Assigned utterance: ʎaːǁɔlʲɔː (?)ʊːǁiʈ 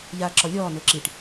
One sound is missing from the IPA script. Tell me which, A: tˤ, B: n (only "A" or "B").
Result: B